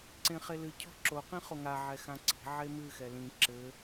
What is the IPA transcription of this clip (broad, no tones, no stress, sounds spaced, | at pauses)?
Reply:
ǀ ẽ χ e l ɨ cʰ ɔ̤ ǁ o q ĩ χ o ŋ a ʕ ɛ x ã ǀ i̤ ʕ e m ɨ x ɛ l ĩ ǁ ɘ